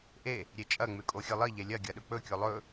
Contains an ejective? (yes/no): yes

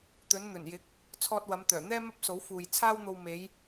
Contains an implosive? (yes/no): no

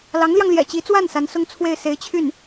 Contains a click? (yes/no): no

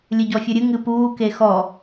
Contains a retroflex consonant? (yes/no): no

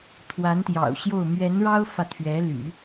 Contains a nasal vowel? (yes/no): no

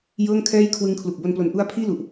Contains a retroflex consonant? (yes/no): no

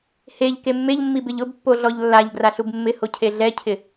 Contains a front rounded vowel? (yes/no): no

